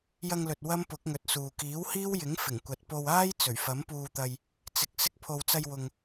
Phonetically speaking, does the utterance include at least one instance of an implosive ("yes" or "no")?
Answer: no